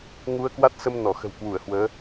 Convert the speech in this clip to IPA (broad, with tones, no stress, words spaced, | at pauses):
ŋu˧ə̯kwa˦˥t̚sə˧m nɔ˧˩xə̤˨˩wkwu˧˩ə̯hwəː˨˦